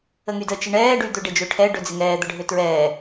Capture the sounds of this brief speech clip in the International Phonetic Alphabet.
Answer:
ə ŋ y d ə t͡ʃ ɪ ɳ ɛː ɖ y d̪ ʏ ɖ e d͡ʒ ø ʈʰ ɛ ɖ ʏ d͡z ɪ ŋ ɛː d̪ ə ɖʱ ø t ɹ ɛː

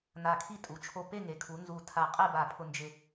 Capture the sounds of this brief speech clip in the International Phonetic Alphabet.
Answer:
n a˧˩ kʰ i˥˧ tʼ u˩˧ t͡ʃʰ o˧˩ p e˥˧ ŋ e˩˧ kʰ u˩˧ n z u˧˩ tʰ a˧˩ qʼ ɛ˥˧ b a˧˩ pʰ ʊ˧ n d͡ʒ ɪ˧

